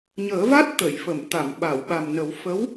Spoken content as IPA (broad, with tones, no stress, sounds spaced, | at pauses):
ɲ əː˨˩˦ v a˦˥ t̚ t̪ ə˨˩˨ j f ə˨˩˨ m t̪ a˨˩˨ m ɓ a˨˩˨ w ɓ a˨˩ m n ə˨˩˦ w f ə˧˥ w